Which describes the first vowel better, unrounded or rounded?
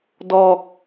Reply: rounded